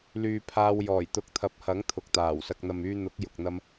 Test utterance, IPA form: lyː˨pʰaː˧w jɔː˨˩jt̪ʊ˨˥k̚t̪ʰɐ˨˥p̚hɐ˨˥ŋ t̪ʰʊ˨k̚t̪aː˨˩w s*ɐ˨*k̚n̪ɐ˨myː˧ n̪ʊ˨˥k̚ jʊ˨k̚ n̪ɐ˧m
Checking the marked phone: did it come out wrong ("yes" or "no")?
no